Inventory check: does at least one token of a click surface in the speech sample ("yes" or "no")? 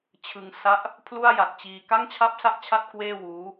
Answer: no